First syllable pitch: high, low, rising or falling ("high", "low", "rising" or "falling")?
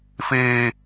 low